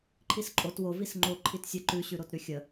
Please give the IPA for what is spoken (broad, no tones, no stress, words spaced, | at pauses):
ǃʰisǃʼot wo visŋ͡ǃo ǃʰitsʲə ǃʉ ɕʉɾotɾʉxʲə